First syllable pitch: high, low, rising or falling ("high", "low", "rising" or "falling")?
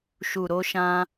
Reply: low